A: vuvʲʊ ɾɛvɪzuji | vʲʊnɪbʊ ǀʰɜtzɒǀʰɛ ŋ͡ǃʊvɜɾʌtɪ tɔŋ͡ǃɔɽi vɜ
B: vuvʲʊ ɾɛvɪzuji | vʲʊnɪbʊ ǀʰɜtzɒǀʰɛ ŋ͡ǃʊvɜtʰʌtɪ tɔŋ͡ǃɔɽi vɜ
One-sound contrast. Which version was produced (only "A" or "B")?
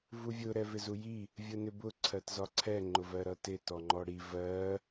A